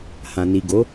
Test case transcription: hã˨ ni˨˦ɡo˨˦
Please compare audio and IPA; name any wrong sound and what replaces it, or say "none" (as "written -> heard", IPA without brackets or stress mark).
i˨˦ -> i˨